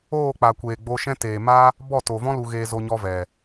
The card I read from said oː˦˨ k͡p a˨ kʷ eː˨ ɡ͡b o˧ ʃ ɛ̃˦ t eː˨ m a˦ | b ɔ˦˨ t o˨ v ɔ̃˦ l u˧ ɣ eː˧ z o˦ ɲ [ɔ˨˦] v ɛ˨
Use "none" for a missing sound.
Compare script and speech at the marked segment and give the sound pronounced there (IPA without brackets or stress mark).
ɔ˦